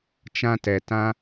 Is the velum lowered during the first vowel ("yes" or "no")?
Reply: yes